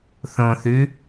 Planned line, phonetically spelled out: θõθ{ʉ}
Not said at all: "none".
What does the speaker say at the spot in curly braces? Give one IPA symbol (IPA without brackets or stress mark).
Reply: ʉ